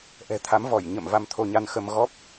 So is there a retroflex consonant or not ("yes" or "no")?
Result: no